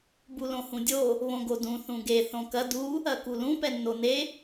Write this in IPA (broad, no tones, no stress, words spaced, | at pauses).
bulõhũdʲo | βõɡodũ θũɡe θõkɐ du | ɐkulũ pɛnːone